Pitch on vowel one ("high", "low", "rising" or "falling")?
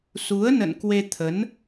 rising